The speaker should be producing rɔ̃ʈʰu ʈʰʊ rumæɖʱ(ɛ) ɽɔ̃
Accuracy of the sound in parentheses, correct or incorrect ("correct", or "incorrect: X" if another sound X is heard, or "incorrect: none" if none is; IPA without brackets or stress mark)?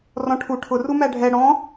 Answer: correct